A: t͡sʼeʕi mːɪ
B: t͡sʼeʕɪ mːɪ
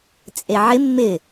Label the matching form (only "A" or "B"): B